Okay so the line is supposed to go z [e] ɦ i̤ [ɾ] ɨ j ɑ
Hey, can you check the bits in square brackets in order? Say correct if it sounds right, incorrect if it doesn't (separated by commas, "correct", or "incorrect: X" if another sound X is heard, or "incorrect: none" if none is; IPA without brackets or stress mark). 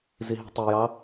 incorrect: i, incorrect: tˤ